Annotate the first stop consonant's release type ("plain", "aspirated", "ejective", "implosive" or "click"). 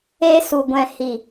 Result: plain